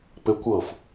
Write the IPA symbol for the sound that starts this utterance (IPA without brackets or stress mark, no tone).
p